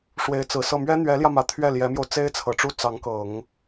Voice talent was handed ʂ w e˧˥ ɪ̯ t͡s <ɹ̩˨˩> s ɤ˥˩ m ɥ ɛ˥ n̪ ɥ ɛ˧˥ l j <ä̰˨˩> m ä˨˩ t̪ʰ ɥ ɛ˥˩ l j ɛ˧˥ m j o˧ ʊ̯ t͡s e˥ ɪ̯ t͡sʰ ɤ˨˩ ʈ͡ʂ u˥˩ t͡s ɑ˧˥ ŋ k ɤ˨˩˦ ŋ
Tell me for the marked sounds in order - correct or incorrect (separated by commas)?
correct, incorrect